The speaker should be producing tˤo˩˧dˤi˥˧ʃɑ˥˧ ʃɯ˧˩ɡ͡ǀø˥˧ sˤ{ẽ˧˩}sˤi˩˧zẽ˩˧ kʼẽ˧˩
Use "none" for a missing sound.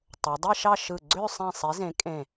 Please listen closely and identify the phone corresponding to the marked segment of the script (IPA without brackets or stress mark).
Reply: ẽ˧˩